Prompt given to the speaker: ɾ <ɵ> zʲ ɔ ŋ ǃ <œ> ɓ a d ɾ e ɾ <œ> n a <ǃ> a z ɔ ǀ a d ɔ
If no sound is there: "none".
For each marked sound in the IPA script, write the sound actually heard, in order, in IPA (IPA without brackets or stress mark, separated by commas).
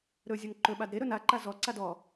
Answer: ɵ, ɵ, ɵ, ǃ